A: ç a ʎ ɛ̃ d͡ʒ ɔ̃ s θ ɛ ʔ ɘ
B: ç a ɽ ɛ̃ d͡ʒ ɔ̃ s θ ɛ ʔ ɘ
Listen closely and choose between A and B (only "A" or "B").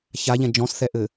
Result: A